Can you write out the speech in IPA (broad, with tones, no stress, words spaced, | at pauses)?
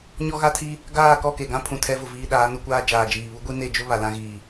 ɲɔ˦ɣa˦tʰi˦ | ɡaː˦˨kɔ˦˨ke˨ɡã˦ pʰũ˨tʰɛ˦vʊ˨ viː˦ ɗaː˨˦nu˦kʷaː˦ d͡ʒaː˨d͡ʒiː˨βu˦ ɡʷi˦ne˦˨d͡ʒʊ˦ βa˨lã˦ɣiː˨